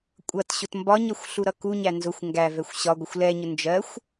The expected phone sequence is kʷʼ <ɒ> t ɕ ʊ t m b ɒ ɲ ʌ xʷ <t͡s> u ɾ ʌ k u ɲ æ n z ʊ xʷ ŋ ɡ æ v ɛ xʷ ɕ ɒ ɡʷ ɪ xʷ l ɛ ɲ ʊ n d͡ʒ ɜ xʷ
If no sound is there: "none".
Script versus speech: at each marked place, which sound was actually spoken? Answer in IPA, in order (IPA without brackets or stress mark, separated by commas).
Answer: ʌ, ɬ